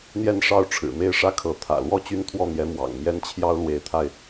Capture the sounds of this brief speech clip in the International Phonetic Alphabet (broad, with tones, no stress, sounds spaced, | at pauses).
n̪ j ɛ˥˧ n ʂ ɑ˥˩ ʊ̯ ʈ͡ʂʰ ɻ̩˨˩ m e˥˩ ɪ̯ ʂ ä˥ kʰ ɤ˧˥ t̪ʰ ä̰˨˩ l w ɔ˥˩ t͡ɕ y˥ n t̪ʰ w ɔ˥˩ n̪ j ɛ˧˥ m w ɑ̰˨˩ ŋ m j ɛ˥ n t͡ɕʰ j ɑ˥ ʊ̯ l w e˧˥ ɪ̯ t̪ʰ a˧ ɪ̯